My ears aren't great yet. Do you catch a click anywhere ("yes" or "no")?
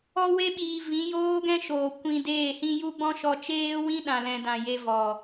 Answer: no